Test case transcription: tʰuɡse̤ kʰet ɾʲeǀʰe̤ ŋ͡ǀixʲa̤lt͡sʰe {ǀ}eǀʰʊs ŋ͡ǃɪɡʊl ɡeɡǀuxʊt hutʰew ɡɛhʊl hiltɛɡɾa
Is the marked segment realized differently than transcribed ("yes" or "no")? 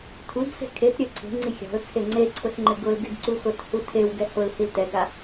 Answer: yes